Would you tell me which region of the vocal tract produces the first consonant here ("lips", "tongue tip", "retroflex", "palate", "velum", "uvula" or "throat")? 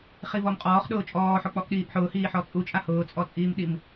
uvula